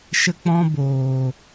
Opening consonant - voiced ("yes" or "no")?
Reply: no